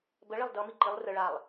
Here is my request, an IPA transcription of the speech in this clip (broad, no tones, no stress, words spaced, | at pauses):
bəɭelˠ dʌ miǃilˠ rə ɭalˠ